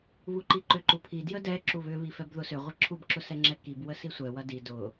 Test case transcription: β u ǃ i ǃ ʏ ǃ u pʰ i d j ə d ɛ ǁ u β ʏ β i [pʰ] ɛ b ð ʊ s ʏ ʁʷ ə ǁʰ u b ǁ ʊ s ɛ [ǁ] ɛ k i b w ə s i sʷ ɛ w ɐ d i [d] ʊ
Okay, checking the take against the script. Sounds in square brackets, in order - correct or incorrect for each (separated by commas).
incorrect, incorrect, correct